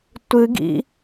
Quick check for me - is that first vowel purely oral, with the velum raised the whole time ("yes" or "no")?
yes